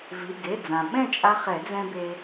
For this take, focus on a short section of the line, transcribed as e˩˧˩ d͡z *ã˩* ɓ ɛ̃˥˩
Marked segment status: correct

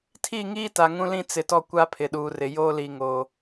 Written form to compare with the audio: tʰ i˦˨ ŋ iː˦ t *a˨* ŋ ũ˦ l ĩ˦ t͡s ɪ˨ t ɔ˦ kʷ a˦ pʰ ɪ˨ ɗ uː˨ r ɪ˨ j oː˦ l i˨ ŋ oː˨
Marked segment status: correct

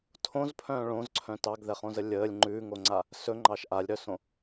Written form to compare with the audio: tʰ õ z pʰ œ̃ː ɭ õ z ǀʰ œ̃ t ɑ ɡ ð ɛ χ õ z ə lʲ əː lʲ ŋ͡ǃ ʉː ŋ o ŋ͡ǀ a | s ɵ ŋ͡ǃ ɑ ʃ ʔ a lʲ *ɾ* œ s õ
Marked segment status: correct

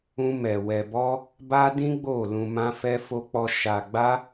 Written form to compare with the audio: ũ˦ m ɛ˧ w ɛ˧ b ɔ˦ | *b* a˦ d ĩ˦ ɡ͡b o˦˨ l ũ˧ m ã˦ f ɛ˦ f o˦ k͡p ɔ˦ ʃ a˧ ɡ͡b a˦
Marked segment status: correct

